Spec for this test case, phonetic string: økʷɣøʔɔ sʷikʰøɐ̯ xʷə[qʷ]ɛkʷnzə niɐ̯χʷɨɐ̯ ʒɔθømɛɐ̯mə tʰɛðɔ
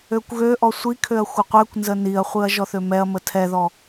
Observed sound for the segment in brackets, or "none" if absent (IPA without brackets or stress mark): qʷ